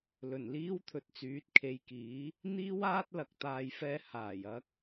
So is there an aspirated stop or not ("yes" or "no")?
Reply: yes